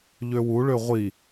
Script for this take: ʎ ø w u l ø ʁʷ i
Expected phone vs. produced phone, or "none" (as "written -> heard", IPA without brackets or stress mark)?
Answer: l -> ɭ